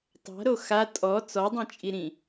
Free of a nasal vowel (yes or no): no